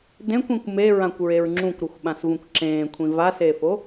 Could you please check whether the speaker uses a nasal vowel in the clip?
yes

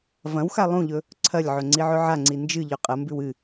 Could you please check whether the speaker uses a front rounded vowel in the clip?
no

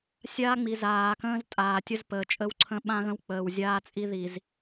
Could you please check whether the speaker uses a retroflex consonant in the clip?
no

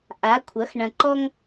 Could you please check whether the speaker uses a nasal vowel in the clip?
yes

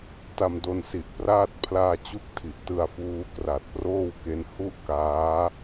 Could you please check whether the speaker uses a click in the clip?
no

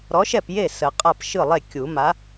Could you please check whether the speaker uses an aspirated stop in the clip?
no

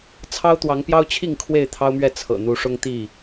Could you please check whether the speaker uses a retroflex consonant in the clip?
yes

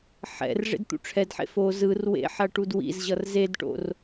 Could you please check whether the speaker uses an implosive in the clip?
no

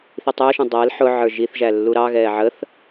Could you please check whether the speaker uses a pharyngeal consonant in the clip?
yes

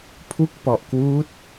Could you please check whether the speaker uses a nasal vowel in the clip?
no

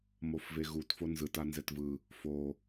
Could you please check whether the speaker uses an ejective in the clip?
no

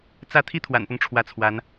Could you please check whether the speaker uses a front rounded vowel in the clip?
no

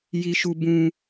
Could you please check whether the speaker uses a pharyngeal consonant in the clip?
no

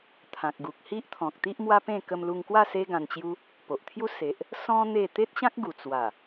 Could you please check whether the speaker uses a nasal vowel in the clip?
yes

